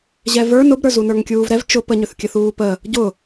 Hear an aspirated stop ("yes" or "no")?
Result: no